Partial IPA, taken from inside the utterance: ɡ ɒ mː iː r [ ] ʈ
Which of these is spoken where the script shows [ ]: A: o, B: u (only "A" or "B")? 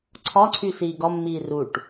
B